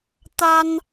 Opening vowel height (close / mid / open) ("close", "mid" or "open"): open